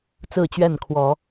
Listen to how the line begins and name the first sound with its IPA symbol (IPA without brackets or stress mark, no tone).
t͡s